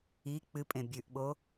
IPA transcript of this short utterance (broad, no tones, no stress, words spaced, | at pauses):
i k͡pɨ pʼẽbʲʉʔɓo